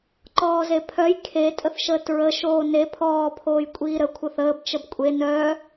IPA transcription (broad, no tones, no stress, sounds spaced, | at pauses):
ǃ ɔː z e pʰ œ j kʰ e tʼ ə θ ʃ əː t ɹ ə ʃ oː n e pʰ ɔː pʰ oː j kʷʼ iː ɾ ə kʷʰ ə θ əː b t͡ʃ ə b kʷʼ e n œ